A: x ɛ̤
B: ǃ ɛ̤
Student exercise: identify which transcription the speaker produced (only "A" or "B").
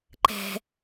B